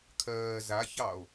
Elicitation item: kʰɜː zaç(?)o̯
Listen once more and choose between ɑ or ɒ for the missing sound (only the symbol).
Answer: ɑ